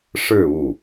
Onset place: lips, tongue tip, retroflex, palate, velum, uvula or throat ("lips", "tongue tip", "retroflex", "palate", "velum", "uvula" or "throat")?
retroflex